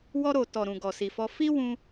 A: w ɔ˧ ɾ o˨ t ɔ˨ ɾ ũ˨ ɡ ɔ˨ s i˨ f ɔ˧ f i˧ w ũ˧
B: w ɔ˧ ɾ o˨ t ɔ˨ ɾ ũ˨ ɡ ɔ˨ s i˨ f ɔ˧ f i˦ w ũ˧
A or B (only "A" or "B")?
B